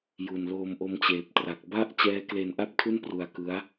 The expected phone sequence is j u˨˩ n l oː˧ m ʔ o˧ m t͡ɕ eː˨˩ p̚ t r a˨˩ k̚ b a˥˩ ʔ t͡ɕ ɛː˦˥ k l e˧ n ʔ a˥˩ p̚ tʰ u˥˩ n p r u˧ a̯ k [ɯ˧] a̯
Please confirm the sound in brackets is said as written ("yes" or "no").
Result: no